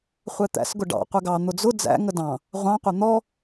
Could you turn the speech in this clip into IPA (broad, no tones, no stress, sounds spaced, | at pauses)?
χʷ ɛ t̪ æ̰ s ɡ ʊ ɖ ɑ̰ qʷ ɛ ɡ ɑ n̪ ʊ d͡z ʊ d͡z æ̰ ŋ ə d ɑ̃ | ʁʷ ɑ̃ qʷ ɛ n̪ ɔ